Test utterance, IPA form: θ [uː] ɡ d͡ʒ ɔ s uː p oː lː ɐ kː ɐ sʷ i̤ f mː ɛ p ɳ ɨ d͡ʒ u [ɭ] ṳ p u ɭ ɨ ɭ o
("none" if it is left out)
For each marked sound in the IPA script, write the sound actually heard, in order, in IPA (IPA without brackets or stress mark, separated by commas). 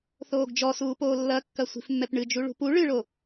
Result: oː, ɭ